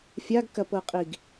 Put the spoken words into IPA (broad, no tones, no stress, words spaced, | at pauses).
fʲaɡ kɐpɤqʼiɡ